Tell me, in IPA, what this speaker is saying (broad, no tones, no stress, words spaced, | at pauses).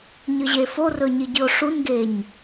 ɲɨʑeforɵ ɲiɟɨo̯ʂunɡeɲ